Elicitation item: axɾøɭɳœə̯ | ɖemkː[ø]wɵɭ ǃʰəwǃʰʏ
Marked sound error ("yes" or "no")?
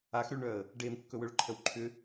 yes